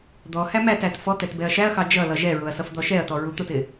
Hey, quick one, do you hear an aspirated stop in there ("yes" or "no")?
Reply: no